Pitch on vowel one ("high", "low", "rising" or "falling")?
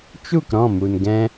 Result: falling